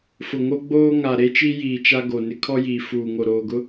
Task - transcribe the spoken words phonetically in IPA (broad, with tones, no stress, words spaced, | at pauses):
fʊ˨ŋo˦ ɡ͡boː˦ŋa˨ɾe˦ t͡ʃi˦jiː˨t͡ʃa˦ ɡo˨nɪ˦kʰɔ˦jiː˨ fuː˨ŋo˨ɾoː˨ɡʊ˦